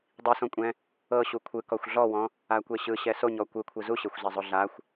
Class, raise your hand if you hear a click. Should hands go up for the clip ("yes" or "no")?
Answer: no